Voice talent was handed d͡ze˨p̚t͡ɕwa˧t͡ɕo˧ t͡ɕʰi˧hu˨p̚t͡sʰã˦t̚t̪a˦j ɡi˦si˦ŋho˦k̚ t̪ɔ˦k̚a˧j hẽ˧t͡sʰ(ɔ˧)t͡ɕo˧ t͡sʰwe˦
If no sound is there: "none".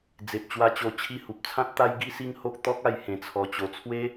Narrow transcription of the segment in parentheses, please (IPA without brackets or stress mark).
ɔ˧